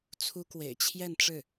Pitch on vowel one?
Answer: high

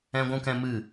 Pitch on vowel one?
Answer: high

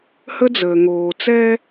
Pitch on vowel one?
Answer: high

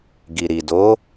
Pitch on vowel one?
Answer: low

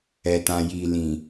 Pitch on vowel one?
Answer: low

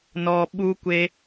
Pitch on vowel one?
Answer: low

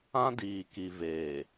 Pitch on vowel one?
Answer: high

